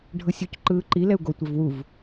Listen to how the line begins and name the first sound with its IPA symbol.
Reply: ɖʱ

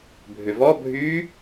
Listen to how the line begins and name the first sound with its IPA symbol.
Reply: bʱ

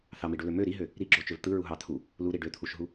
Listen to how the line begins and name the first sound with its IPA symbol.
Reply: θ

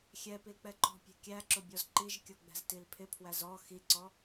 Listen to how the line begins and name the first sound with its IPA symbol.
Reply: xʲ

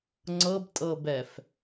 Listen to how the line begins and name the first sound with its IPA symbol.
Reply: ŋ͡ǀ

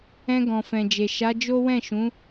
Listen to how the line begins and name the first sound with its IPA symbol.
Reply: ɛ̃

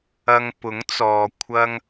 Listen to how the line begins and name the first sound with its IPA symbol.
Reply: ɐ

